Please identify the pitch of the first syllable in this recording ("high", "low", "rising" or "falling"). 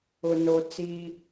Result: low